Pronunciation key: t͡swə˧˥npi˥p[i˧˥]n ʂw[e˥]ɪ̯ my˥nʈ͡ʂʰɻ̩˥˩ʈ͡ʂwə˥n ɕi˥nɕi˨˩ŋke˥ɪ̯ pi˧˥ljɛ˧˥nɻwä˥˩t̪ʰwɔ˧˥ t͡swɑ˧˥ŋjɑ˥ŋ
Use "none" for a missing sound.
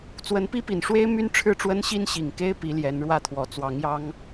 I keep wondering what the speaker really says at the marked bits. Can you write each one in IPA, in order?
i˨˩, e˥

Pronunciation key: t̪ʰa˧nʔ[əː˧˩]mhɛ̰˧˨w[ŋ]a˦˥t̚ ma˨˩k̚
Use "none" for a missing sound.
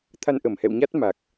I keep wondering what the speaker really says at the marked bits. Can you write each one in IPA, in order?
ə˧˩, ɲ

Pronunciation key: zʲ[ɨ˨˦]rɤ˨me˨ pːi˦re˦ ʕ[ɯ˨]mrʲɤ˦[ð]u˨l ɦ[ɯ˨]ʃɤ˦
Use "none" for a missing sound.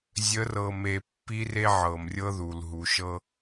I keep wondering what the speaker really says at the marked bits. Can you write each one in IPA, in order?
ə˨˦, ɤ˨, ð, u˨

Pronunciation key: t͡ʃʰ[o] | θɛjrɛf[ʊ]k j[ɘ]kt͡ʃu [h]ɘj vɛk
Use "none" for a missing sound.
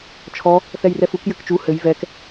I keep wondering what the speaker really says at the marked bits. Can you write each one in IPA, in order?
ɔ, u, ɘ, h

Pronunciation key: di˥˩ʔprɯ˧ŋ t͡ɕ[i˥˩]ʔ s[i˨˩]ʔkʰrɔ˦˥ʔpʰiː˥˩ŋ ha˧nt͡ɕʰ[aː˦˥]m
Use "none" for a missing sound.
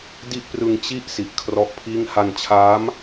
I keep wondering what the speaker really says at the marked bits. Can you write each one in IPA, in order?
i˥˩, i˨˩, aː˦˥

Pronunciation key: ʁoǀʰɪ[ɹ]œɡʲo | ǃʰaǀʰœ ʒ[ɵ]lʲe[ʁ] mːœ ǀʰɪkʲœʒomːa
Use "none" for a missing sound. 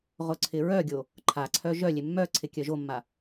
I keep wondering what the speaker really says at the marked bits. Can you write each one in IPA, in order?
ɹ, œ, none

